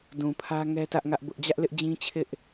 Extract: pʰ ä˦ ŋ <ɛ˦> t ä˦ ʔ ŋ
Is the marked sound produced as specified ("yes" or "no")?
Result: yes